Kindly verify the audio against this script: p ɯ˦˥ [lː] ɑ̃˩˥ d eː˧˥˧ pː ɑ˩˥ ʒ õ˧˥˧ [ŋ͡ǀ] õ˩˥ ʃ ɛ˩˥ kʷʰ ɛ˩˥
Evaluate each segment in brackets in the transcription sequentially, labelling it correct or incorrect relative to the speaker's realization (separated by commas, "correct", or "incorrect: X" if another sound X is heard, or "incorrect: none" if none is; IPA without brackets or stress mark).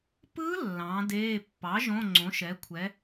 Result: correct, correct